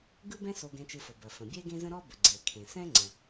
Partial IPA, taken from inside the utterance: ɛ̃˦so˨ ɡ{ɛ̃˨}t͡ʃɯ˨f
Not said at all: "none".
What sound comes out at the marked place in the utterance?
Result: ɛ̃˨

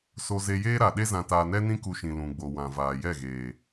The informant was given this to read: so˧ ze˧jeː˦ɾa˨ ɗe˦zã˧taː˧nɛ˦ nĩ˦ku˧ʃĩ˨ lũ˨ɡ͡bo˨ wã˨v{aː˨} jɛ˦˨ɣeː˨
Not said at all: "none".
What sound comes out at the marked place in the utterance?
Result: aː˨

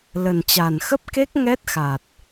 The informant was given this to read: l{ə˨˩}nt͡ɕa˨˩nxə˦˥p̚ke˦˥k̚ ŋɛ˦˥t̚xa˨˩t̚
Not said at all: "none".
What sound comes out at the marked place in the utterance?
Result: ə˨˩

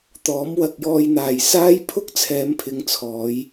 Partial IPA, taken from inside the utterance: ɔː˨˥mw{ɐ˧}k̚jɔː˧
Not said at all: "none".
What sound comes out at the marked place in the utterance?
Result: ɐ˧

